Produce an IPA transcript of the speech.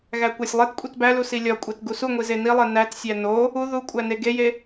ɣ æ kʷ æ sʲ lˠ e t kʷʼ i t b æ l u s i lʲ ɒ kʷʼ e t ɡ u s u ŋʷ i z e n i lˠ e n æ t sʲ æ n o | u ð u kʷʼ æ n e ɡ e j e

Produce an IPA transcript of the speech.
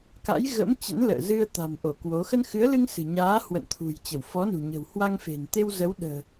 k a̰˧˥ j ɣ ə̰˧˥ m t͡ɕ ə̰˧˥ n l ə̰ː˧˨ z ɨ˧ ə̯ t̪ a̤˨˩ m ʔ o˧˩ k w o˨˦ x ə˧ n x ɨ˨˦ ə̯ l ɨ˧ ŋ s ɨ̤˨˩ ɲ aː˨˦ h w ə̰˧˨ n t̪ʰ ṳ˨˩ j t͡ɕ ə˧˩ w f ɔ˨˦ n ṳ˨˩ ɲ ə̤˨˩ w h w a˧ ŋ f e̤˨˩ n t̪ e˧ w z ə˨˦ w ɗ ə̤ː˨˩

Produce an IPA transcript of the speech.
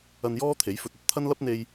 ɐ˧ n j ɔː˥ t̪ʰ e˨˥ j f ɵ˧ t̚ ɐ˥ t̚ t̪ʰ ɐ˥ n l ɐ˥ p̚ n̪ e˧ j

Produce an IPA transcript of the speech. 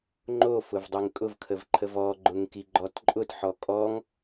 ŋ͡ǃ o f ʊ v dˤ i ŋ kʼ ʊ v kʰ ə v ǃʰ ə v ɔ ɡ͡ǃ ʊ ŋ k i ɡ͡ǃ ɔ t ǃʼ ʊ t ħ ɔ kʼ ɔ ŋ

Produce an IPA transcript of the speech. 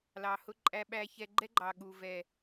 l ɑ˨ h ʊ˥ ǃʼ æ˥ ɓ æ˥ ç ɛ˥ ɡ͡ǃ ɛ˥ ɡ͡ǃ ɑ˨ ɠ u˨ v ɛ˨

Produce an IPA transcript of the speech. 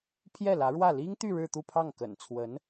pʰ j ɛ˥˩ l ä˧˥ ɻ w ä˥˩ l i˥ ŋ t̪ y˥˧ ɻ ɻ̩˥˧ t̪ u˥˧ pʰ ɑ˥˩ ŋ k ə̰˨˩ n t͡sʰ w ə˧˥ n

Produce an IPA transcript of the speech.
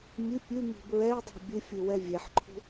mʲ ʉ pʲ ʉ m i̤ b ɹ ɛ i̯ dˤ i̤ bʲ ɨ fʲ ɨ w ɛ vʲ e ħ ǃʰ ṳ

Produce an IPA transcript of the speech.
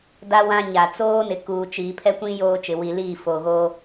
d a˦ w ã˦ ɲ a˨ t͡s oː˦ n ɪ˨ k uː˨ t͡ʃ iː˨ pʰ ɛ˦ kʷ ĩ˦ j oː˦ t͡ʃ ɪ˨ w i˨ l iː˦˨ f o˨ ɣ o˦

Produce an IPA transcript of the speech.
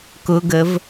k ʊ ɡ ə v

